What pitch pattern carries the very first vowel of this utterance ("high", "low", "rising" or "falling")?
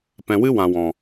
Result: low